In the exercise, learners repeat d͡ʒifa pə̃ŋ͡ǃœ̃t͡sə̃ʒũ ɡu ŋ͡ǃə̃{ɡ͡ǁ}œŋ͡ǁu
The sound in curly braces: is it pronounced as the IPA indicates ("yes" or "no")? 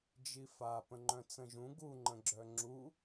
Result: yes